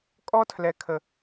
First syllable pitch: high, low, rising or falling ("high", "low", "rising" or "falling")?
high